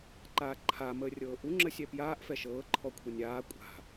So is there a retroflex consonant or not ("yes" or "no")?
no